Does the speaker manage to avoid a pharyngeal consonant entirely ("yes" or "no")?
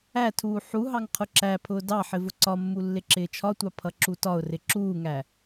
no